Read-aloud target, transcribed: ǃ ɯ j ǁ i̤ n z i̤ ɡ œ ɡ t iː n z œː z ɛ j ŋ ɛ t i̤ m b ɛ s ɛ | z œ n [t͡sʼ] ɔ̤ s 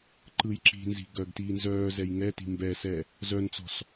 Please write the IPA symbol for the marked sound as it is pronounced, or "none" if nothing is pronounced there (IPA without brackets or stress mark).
t͡s